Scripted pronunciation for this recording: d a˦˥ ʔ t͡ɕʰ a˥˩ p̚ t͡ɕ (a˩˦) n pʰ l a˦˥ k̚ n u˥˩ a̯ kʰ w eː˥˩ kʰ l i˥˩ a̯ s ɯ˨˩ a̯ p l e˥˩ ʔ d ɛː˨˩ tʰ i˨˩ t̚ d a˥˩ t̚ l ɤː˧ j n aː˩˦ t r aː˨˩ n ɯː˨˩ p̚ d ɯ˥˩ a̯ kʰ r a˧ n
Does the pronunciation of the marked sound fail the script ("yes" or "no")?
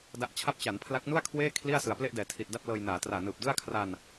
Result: no